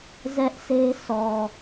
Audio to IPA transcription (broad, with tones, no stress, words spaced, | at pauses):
zɛ˦ʔse˦ sɔ˨